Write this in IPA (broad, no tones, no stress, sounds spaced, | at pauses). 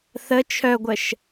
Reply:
θ ə t͡ʃʰ œ ɡʷ ə ʃ